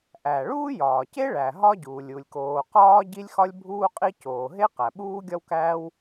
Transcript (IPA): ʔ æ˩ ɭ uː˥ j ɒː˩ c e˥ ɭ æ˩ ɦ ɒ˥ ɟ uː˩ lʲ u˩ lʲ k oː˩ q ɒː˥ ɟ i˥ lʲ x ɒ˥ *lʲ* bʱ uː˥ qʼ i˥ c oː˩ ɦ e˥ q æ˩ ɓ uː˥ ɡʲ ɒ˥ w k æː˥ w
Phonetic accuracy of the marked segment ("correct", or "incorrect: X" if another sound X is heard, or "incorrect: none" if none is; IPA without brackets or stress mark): correct